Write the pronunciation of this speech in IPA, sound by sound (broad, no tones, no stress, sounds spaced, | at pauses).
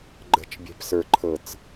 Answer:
ɡ͡ǃ ə̤ t͡ʃ bʲ e̤ p s ə˞ ǃʰ ɤ t͡s